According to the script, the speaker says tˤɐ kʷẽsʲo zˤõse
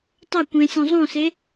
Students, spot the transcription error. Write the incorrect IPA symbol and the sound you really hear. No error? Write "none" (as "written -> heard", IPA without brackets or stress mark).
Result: o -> õ